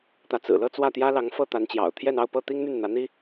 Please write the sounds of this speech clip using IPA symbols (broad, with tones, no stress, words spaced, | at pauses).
t̪ä˧˥t͡sɹ̩˨˩lɤ˥˧ t͡swä˥˩t̪jä˥lɑ˧˥ŋ fɤ˥˩t̪a˧˥nt͡ɕjɑ̰˨˩ʊ̯t̪ʰjɛ˥˧n ɑ˥˧ʊ̯pɤ˥˩t̪i˥ŋn̪y˥˩n n̪ä˧˥n̪i˥